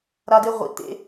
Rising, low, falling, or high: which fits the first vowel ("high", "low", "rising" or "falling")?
high